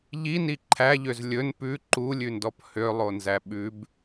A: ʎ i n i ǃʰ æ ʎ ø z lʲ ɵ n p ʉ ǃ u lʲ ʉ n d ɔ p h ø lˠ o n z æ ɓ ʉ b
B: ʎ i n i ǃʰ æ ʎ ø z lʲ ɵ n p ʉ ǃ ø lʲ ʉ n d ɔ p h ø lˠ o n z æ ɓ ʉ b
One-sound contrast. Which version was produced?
A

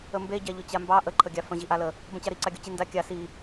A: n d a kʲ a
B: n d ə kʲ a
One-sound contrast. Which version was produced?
A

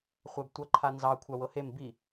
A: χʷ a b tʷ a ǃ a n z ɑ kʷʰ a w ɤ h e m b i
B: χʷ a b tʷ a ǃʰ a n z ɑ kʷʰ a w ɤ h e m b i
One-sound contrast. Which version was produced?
B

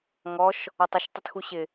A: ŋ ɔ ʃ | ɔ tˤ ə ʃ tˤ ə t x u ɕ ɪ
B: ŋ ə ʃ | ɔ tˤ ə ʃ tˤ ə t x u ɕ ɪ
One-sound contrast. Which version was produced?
A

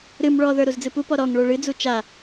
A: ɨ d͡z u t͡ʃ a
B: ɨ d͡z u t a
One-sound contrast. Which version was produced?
A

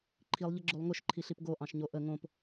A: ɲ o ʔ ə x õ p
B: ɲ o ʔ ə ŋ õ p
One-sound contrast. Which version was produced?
B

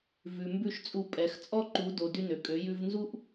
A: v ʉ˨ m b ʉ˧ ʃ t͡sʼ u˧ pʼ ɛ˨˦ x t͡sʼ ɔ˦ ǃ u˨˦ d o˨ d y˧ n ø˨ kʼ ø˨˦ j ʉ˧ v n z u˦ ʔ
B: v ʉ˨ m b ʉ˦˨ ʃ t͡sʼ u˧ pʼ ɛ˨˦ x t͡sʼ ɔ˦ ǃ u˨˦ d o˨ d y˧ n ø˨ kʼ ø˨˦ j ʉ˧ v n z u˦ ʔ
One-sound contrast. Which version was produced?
B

